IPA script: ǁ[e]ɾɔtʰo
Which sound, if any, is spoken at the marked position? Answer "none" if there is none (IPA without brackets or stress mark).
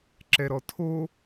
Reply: ɛ